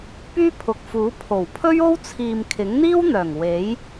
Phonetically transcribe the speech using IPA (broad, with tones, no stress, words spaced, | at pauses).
pyː˥pʰʊ˨k̚fuː˨˥ pʰo˨˩wpʰɵ˥ɥo˥w t͡sʰiː˨mkʰɪ˨˥ŋn̪iː˥wn̪œː˨˩ŋ we˨˥j